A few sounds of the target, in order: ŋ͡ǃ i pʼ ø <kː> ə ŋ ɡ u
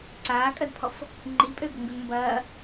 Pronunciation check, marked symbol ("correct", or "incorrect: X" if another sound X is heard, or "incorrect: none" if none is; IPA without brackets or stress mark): incorrect: ɡ